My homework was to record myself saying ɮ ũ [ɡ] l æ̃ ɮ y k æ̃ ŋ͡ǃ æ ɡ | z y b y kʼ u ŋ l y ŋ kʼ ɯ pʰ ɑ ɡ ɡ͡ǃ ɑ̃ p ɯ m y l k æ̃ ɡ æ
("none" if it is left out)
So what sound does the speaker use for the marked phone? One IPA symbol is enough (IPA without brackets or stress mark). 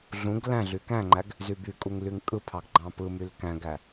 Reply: ɡ